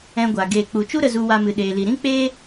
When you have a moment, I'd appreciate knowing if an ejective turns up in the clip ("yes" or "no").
no